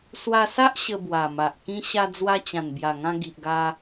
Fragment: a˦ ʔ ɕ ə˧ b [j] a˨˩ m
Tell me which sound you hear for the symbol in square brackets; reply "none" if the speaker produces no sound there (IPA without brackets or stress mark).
w